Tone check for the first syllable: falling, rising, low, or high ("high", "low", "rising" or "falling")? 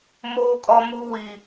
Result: high